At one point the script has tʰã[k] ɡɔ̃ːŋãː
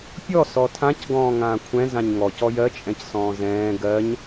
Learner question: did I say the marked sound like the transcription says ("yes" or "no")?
no